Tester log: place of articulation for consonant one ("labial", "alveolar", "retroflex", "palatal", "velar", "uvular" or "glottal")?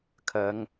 velar